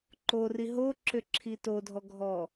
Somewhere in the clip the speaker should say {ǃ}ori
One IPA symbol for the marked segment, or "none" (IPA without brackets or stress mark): ǃ